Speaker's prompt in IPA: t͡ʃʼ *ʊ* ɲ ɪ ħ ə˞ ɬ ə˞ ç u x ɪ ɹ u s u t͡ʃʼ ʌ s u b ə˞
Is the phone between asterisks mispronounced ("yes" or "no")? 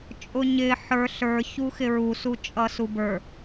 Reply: no